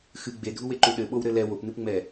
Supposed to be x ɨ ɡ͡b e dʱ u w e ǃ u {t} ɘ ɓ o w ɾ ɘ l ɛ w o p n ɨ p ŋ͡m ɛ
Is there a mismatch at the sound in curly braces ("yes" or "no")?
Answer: yes